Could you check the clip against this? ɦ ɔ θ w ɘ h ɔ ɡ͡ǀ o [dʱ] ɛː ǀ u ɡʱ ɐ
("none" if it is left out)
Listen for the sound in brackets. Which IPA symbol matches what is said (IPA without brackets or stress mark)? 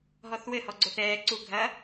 θ